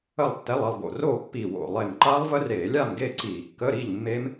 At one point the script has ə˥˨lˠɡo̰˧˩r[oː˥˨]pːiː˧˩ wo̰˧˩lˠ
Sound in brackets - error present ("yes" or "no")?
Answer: no